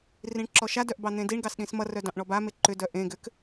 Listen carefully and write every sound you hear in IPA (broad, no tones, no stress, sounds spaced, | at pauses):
r ĩ ɳ ǁ ɔ ʃ a d œ ʔ b ɑ n̪ ẽ d i ɳ ɡ ɑ s ɗ ĩ s m ʌ r œ d ɑ̃ ʔ ɳ ɔ b a m e ǃ ʏ d œ ʔ ẽ ɡ ʏ k